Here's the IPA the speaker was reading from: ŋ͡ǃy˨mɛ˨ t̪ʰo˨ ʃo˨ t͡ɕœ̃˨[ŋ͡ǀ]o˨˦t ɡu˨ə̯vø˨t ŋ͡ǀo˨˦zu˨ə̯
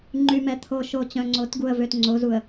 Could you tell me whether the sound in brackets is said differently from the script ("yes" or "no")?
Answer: no